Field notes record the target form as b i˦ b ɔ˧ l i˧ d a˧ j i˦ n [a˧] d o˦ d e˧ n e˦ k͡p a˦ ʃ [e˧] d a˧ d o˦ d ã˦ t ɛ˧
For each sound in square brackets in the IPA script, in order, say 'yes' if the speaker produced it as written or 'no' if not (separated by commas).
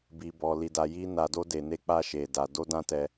yes, yes